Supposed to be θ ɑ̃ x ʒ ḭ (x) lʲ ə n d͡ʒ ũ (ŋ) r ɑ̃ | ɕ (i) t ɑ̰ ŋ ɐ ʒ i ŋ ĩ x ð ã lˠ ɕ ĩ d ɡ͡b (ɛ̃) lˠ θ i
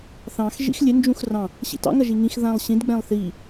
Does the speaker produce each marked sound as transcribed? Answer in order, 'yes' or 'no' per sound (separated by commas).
yes, no, no, yes